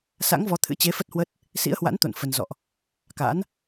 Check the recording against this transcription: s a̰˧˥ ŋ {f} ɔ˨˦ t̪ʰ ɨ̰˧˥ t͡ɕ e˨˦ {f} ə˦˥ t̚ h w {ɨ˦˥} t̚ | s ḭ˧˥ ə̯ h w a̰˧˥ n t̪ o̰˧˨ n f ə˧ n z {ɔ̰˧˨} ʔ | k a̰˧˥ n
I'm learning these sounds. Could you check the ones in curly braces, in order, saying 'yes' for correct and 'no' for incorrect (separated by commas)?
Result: no, yes, no, yes